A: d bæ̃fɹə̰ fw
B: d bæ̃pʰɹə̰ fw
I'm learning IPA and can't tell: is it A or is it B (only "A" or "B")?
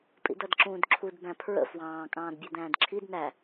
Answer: B